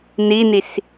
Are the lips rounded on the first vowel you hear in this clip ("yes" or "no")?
no